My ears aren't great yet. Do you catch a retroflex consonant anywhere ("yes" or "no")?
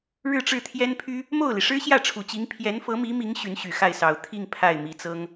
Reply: yes